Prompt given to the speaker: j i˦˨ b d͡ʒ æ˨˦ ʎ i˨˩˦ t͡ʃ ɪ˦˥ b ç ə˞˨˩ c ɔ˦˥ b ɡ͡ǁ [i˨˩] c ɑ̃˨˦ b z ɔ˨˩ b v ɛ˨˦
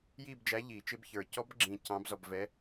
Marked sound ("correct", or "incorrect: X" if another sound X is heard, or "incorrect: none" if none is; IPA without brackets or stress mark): incorrect: ĩ˨˩